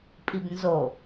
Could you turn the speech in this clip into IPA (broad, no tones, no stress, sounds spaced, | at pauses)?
pʼ i b n z o